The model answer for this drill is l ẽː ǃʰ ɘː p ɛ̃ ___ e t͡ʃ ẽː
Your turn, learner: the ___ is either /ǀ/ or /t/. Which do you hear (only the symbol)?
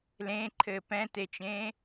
t